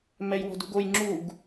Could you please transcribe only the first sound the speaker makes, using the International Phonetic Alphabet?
m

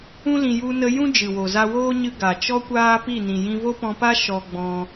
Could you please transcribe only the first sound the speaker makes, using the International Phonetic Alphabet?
ũ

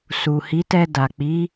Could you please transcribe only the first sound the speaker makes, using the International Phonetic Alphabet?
s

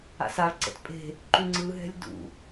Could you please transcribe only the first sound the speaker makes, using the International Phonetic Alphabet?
a̰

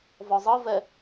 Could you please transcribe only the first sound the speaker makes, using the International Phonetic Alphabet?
v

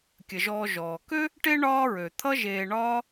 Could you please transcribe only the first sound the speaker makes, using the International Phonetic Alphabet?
kʲ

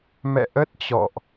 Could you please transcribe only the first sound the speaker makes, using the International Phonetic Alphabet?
m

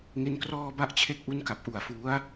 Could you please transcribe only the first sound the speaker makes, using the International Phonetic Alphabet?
ŋ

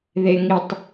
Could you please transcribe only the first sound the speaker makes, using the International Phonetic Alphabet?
ð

